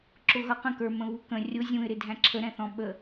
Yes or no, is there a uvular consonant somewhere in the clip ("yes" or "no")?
yes